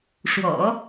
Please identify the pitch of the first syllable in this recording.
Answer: low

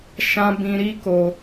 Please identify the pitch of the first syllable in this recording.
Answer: high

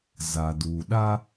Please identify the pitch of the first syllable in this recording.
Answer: low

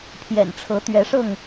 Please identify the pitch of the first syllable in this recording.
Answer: low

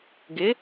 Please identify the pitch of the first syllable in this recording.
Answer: rising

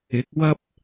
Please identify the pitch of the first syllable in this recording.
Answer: rising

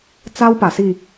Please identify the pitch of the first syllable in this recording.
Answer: high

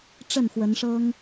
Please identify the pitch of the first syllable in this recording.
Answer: falling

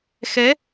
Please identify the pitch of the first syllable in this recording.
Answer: rising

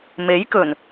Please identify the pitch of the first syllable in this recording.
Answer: rising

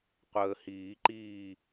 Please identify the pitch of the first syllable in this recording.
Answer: low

